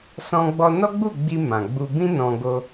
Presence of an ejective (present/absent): absent